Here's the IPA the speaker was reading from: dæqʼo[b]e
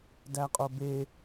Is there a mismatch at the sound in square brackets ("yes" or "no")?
no